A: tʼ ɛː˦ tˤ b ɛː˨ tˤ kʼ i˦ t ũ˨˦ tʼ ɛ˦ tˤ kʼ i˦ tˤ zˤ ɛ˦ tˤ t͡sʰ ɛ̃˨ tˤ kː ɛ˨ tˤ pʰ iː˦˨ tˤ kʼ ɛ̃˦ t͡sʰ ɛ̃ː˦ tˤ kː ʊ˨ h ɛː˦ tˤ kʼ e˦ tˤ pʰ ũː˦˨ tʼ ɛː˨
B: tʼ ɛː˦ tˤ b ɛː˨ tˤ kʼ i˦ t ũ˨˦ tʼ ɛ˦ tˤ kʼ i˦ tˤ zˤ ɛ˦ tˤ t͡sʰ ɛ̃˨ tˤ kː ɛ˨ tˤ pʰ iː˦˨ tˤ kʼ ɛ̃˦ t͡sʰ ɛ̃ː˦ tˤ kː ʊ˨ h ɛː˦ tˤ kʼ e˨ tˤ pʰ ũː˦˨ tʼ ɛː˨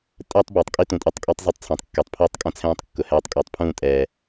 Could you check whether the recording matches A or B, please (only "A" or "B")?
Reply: B